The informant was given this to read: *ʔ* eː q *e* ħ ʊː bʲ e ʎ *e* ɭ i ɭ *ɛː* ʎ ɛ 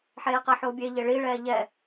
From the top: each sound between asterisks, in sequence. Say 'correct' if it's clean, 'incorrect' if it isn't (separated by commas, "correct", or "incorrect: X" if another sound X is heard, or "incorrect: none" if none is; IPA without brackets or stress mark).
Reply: incorrect: ħ, incorrect: ɛ, correct, correct